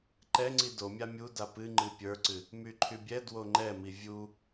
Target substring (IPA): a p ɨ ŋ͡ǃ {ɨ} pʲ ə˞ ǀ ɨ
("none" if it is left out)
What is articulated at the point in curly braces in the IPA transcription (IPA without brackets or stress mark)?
ɨ